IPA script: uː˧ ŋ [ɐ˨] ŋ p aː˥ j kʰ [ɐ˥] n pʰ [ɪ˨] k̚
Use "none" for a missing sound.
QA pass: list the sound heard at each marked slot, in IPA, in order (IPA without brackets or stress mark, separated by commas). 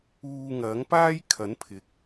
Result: ɐ˨˥, ɐ˨˥, ɪ˨